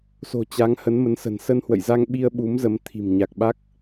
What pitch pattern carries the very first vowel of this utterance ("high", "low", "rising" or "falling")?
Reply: low